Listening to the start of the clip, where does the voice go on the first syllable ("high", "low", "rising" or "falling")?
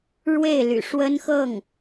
falling